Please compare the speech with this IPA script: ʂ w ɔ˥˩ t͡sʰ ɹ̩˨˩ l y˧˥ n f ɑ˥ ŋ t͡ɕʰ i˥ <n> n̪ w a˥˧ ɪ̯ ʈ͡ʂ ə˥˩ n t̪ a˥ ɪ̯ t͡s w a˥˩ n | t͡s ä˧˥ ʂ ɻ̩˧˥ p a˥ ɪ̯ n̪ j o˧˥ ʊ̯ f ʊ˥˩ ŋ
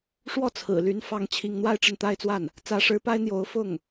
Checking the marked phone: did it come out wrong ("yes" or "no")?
yes